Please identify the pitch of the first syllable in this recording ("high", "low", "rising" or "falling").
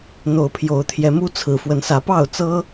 rising